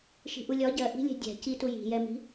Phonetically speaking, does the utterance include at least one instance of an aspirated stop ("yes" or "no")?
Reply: no